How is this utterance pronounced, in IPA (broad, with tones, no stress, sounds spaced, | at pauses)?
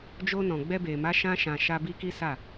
d͡ʒ o˧ n ɔ̃˨ ɡ͡b ɛ˧ b e˨ m a˨˦ ʃ ã˧ ʃ ã˨ ʃ a˧ b i˧ k i˦ s a˦˨